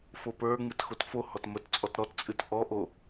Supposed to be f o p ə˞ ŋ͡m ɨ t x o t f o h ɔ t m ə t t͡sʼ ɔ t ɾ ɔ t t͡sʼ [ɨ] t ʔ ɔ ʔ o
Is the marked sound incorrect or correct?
correct